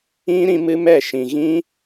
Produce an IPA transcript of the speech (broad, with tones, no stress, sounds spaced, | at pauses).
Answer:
ĩ˦ ɾ ĩ˦ m ɨ˦ m ɛ˦˨ ʃ ĩ˨ ɣ ĩ˦